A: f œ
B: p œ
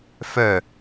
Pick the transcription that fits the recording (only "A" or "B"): A